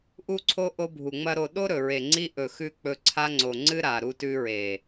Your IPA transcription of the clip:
ʔu˦ǀʰo˦ ʔo˦bʱu˨ŋ͡mɐ˦ɾo˧ ɗo˦ɾɵ˨ɹe˨ŋ͡ǀi˧ ʔɵ˨xʉ˧ k͡pɵ˧ǀʰa˦ŋ͡ǀo˨ ŋ͡ǀɨ˦ɾa˨ ɾu˧tʉ˧ɹe˨

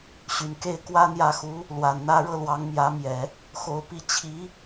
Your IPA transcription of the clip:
ɕy˨˩nke˥˩ɪ̯ kwä˥n̪jä˥˩ xu˧˥ | lwa˨˩nn̪ä˥ɻɤ˥ lwɑ˧˥ŋmjä˧˥mjɛ˨˩˦ | xo˧˥ʊ̯ pi˥˩ t͡ɕʰi˧˥

